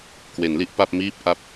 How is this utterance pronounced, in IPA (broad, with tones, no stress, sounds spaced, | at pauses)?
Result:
k w e˩˦ n l i˦˥ ʔ p a˥˩ p̚ m iː˦˥ p̚ ʔ a˦˥ p̚